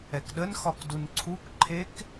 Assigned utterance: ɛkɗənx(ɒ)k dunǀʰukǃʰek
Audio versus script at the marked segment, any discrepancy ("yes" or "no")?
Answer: no